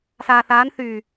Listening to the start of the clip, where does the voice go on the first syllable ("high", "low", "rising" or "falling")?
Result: low